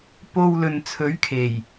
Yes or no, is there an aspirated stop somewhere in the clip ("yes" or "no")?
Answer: yes